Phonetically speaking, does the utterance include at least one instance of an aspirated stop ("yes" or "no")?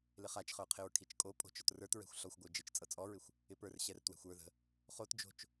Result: yes